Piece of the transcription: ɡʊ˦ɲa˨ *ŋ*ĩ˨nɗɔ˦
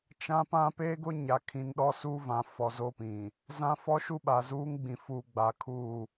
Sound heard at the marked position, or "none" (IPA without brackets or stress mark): kʰ